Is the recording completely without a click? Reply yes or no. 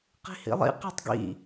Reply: yes